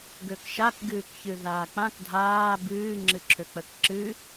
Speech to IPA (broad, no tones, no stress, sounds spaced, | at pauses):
ɡ ø k ʃ a k ɡ ɨː k ç ɨ ð aː k͡p ã k dʱ aː b ɨː ŋ͡ǁ ɨ ǁʰ ø k͡p ə k ǁ ɨ